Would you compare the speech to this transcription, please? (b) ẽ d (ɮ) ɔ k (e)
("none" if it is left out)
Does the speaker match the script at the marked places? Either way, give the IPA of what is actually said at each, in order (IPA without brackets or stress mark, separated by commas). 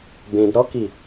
b, ɾ, i